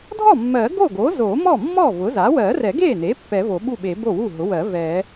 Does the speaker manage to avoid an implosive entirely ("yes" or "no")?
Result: no